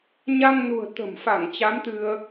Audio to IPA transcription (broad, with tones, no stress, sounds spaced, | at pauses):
ɲ a˧ ŋ n ṳ˨˩ ə̯ t̪ ə̤˨˩ m f a˧˩ ŋ t͡ɕ a˨˦ m t̪ ɨ˧ ə̯